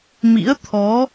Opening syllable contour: rising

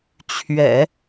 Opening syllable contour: low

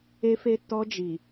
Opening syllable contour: high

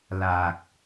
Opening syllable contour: low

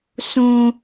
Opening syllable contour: high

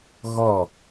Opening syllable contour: falling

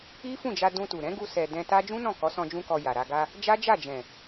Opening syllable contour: high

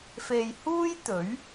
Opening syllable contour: low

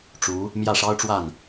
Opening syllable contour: rising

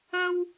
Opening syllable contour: high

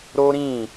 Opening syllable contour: high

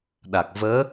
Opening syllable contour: low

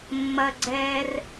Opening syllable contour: high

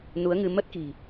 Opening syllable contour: rising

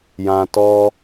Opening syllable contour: low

